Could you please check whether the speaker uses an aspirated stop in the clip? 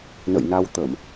no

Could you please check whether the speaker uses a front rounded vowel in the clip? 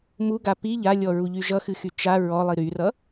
yes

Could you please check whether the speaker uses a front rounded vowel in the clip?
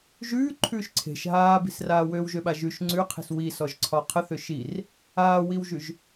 yes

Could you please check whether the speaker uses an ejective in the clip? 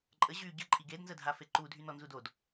yes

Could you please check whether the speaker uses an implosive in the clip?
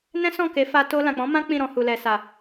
no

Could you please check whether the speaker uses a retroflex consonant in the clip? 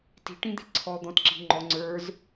yes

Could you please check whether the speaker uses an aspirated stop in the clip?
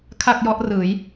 yes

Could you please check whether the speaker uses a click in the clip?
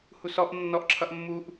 yes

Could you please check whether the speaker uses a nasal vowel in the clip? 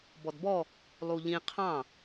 yes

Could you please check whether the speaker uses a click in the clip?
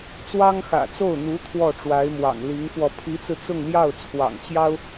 no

